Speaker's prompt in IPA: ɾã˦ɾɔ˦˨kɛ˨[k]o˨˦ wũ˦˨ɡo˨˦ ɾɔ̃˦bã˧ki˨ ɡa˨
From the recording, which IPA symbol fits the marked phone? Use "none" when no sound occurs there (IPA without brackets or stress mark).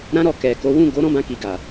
k